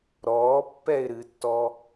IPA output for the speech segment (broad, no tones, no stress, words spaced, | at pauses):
ɾɔːpːɛɪ̯ɾɨtːɔ